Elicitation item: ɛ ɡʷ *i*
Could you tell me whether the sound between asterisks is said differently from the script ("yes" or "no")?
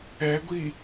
no